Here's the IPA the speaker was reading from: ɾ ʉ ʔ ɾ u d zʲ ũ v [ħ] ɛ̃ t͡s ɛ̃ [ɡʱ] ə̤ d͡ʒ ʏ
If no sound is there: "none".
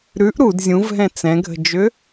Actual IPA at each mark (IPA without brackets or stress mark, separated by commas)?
ɦ, ɡʱ